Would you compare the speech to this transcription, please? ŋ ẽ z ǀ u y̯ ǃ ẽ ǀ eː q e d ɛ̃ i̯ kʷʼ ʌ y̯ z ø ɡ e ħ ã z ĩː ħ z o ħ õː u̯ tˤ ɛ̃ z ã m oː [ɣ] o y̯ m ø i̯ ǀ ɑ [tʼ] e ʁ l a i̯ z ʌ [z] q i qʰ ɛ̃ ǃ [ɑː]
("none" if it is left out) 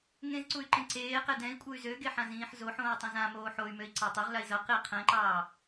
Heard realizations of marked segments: ħ, tˤ, none, ɑː

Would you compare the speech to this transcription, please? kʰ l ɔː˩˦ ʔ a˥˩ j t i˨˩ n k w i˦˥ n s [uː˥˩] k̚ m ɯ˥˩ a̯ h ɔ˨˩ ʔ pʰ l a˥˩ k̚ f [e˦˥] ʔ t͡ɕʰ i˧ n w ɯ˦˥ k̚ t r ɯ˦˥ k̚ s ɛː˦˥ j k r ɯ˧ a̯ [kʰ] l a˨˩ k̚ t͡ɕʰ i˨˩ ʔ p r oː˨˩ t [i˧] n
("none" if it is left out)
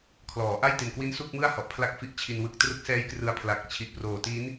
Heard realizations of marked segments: u˥˩, i˦˥, pʰ, i˦˥

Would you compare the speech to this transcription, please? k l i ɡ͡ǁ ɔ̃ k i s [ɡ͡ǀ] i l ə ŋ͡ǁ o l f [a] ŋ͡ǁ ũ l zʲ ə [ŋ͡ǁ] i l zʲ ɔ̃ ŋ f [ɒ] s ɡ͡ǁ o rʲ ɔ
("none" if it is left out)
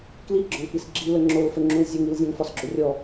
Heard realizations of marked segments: ɡ͡ǁ, ə, ŋ, ɒ

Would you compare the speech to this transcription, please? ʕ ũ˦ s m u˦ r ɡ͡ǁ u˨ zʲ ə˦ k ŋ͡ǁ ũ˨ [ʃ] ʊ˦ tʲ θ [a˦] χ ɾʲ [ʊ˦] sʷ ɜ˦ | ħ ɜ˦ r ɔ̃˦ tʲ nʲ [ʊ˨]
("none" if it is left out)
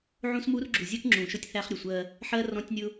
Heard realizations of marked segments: ʃ, æ˦, ʊ˨, ʊ˦

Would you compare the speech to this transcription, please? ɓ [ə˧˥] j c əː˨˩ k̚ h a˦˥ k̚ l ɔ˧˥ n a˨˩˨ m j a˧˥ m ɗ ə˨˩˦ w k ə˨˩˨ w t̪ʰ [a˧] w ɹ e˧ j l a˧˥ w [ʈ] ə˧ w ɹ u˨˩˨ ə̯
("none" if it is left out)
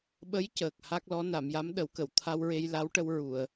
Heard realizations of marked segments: ə˧˥, a˧, ʈ

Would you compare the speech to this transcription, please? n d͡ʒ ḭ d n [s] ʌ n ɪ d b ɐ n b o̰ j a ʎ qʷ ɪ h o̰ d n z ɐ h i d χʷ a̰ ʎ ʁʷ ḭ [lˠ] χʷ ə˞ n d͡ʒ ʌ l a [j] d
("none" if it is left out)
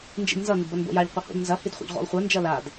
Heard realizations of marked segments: z, lˠ, none

